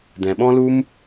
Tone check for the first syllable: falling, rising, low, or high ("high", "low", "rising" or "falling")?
low